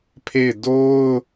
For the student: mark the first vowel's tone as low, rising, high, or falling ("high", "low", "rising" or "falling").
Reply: falling